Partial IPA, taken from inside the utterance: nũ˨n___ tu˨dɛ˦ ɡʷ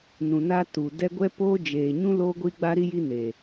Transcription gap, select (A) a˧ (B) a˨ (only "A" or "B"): A